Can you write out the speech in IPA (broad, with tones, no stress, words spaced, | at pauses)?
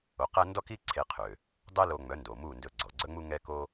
o˩˥qæ˥ ndɔ˥ki˥ ǀʰe˧qʰø˩ | dˤɛ˥lo˧ŋ͡mœ˩˥ndo˩ mu˥˩ndɵ˧ ɡ͡ǀɔ˩ ɡ͡ǀœ˥ŋ͡mu˥ŋɛ˥ko˥